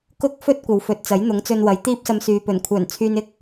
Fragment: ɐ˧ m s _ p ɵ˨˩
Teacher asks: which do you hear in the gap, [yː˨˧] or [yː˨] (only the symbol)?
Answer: yː˨